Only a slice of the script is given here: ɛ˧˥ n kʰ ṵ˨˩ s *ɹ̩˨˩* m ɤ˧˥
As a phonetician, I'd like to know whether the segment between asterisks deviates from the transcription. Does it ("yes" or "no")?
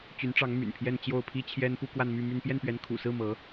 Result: yes